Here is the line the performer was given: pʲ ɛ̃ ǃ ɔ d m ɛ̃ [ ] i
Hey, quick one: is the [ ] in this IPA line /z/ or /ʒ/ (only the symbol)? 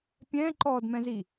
z